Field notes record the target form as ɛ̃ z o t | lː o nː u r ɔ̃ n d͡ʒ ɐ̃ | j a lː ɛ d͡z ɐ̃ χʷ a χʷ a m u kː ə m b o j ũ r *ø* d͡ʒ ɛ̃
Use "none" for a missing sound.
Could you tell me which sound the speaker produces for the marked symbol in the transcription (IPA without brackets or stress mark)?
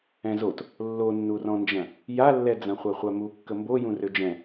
ø